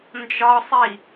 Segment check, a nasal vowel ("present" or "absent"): absent